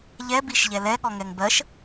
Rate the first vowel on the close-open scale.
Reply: mid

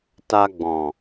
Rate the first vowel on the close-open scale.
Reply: open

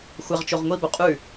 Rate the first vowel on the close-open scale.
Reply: open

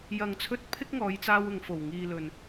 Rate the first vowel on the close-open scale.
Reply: open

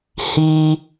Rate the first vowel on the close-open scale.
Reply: close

